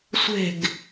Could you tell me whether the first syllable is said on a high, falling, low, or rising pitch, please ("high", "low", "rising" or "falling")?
falling